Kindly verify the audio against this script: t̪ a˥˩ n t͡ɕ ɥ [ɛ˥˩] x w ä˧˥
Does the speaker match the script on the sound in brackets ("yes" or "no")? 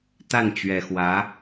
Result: no